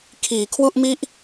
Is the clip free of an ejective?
yes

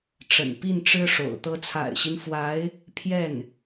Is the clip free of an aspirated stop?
no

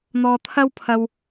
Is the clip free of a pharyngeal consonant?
yes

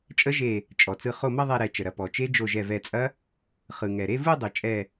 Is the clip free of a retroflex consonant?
yes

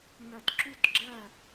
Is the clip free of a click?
no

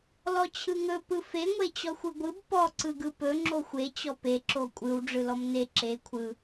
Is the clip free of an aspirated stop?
no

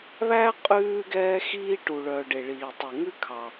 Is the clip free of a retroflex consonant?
no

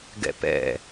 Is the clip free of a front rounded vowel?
yes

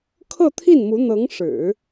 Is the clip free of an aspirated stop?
no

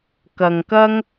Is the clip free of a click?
yes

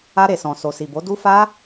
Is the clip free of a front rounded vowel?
yes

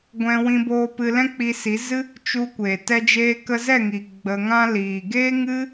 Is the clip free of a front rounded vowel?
yes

